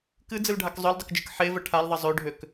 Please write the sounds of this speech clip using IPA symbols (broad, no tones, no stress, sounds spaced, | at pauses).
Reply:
k ɨ d͡z ɨ l ɖʱ a k zˤ ø l dˤ ə k d͡ʒ ɨ k ħ e v ə ʈʰ a l ðˤ ə zˤ ø ɖʱ ø k